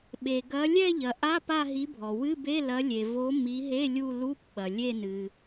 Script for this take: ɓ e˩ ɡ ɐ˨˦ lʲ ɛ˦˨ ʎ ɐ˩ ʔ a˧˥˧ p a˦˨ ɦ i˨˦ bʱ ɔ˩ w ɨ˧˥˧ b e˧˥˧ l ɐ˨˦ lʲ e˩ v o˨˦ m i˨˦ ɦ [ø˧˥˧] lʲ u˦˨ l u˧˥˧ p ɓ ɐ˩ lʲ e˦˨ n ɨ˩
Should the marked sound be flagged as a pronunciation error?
yes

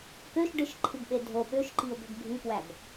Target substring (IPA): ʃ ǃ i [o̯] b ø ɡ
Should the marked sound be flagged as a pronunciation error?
no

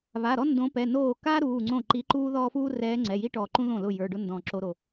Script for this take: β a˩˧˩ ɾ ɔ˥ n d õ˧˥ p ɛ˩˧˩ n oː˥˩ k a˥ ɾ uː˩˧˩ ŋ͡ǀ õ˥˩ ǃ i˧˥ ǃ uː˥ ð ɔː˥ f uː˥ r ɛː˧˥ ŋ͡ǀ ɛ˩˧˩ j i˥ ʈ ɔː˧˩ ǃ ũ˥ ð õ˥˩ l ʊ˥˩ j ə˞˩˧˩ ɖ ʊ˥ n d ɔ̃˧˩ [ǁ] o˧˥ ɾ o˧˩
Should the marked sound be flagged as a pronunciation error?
no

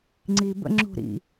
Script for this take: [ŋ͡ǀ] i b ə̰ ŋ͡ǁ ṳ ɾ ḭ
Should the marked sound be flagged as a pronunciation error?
no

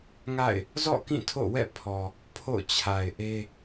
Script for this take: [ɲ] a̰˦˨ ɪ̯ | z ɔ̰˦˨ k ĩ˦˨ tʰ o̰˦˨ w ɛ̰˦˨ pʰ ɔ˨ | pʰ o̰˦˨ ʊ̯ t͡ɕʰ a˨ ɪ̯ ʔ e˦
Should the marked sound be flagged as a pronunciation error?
yes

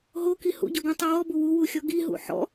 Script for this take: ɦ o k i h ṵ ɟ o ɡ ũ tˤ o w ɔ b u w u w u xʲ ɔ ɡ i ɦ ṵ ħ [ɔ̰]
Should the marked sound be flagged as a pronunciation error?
no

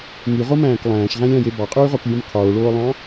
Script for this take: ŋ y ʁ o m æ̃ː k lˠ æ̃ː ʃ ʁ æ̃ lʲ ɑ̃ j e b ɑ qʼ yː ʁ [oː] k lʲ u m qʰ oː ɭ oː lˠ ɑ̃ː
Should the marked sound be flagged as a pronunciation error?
yes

